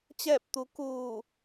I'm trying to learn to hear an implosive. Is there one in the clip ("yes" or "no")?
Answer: no